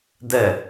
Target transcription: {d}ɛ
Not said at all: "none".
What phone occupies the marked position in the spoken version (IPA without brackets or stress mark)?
d